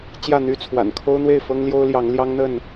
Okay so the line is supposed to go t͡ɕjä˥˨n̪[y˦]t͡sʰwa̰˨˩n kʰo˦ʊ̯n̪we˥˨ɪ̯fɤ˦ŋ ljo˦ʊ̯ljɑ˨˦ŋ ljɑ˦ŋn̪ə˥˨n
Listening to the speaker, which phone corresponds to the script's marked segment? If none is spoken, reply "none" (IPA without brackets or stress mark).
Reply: y˦